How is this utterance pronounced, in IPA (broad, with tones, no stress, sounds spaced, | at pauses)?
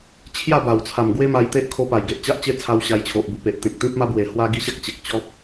t͡ɕʰ j a˥˧ b a˨˩ w t͡sʰ a˨˩ m ɡ w e˦ m a˧ j t̪ e˦ ʔ kʰ o˧ p a˨˩ j ɡ e˨ ʔ t͡ɕ a˦ ʔ t͡ɕ e˦ t͡sʰ a˧ w ɕ a˧ j t͡ɕʰ o˨ ʔ b u˧ p e˨ ʔ t̪ ẽ˨ k̚ t̪ ĩ˦ p̚ m a˦ b w e˨˩ h w a˦ ɡ i˦ ɕ a˦ k̚ t͡ɕ e˨ k̚ t͡ɕ ɔ˦ p̚